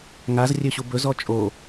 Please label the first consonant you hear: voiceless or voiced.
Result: voiced